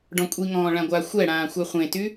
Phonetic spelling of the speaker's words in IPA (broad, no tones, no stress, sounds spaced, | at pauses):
ɖ ɔ̃ kʷʼ i ŋ ɔ̃ː ɭ ã ɡʷ a xʷ ɛ ɽ ãː xʷ a χʷ ẽ t y